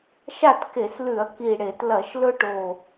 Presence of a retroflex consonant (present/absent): present